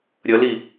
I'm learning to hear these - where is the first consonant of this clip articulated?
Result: tongue tip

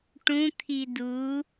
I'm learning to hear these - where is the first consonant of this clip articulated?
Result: retroflex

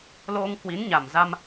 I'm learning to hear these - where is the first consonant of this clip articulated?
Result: tongue tip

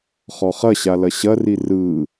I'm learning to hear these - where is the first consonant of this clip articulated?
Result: uvula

